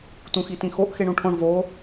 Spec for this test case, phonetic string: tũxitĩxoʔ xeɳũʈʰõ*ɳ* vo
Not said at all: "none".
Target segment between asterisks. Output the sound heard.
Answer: ɳ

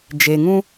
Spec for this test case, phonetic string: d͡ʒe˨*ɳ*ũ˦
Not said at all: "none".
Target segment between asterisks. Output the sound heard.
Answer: ŋ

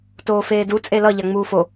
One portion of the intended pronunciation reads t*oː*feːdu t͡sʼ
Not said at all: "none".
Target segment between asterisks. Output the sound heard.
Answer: oː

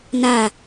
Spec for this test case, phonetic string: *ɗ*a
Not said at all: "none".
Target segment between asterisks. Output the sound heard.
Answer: n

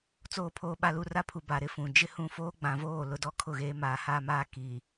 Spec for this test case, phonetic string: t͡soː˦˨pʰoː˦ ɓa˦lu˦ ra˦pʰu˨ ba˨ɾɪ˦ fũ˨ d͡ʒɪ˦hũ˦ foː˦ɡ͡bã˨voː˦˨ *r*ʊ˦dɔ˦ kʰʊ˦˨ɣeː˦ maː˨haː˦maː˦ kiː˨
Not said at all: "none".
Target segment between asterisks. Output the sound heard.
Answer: l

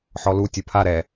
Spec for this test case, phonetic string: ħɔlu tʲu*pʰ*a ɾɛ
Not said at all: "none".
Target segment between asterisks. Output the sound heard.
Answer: pʰ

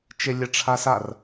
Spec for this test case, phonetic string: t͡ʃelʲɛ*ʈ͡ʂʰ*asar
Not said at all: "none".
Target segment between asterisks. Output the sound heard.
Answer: ʈ͡ʂʰ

